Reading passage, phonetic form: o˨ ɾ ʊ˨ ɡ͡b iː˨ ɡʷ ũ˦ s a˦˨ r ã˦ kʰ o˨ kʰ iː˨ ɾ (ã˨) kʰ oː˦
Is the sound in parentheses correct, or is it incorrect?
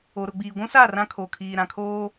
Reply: correct